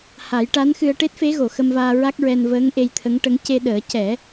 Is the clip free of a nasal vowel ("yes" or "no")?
yes